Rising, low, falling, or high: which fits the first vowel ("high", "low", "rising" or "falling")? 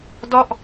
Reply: falling